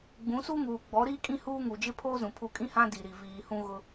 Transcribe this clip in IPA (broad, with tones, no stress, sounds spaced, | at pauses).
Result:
ɡ͡b ũ˨˦ s uː˦ ŋ uː˨ ɡ͡b ɔ˨˦ ɾ iː˦ kʼ ĩ˦ h uː˦ ŋ u˨ d͡ʒ ɪ˦ pʰ oː˦ z ũ˨ pʰ u˨ kʼ ĩ˦ h ã˦ d i˨ ɾ i˨ v iː˨ h ũ˦ ɣ ʊ˦